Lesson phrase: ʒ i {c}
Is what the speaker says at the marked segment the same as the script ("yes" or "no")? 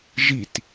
no